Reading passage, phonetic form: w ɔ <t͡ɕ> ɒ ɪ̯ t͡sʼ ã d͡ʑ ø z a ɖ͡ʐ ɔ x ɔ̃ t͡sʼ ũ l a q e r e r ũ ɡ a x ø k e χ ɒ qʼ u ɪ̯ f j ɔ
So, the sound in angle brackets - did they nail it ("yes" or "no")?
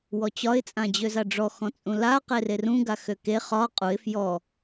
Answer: yes